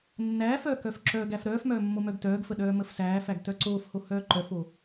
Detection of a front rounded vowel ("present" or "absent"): present